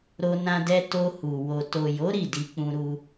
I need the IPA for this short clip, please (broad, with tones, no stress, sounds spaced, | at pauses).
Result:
ɾ o˧ n ã˧ d ɛ˧ t o˧ h u˨ w o˨ t o˨ j o˨˦ ɾ i˦˨ d i˧ k͡p ũ˧ ɾ u˧